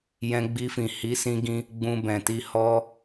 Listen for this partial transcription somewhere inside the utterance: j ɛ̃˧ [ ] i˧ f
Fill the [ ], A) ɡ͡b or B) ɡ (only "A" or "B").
A